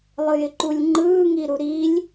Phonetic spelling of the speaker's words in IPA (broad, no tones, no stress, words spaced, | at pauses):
lˠɯjɪǃulʲŋ͡ǃɯː ŋiɾuɾilʲ